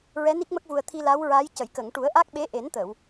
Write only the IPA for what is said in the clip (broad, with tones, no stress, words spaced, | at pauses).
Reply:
ɹɛ˧˥ni˦˥k̚mə˦˥k̚vu˨˩ə̯ t̪ʰi˧la˧˥wɹaː˧˥j cə˨˩˨jkə˨˩˨ŋ ʈu˨˩˦ə̯ʔa˦˥k̚ɓe˧˥ ʔe˨˩˦nt̪ə˨˩˨w